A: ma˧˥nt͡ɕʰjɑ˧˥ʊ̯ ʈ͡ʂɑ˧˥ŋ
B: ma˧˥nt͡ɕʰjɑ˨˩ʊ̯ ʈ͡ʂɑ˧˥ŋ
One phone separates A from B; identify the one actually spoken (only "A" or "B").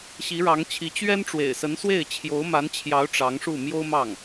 A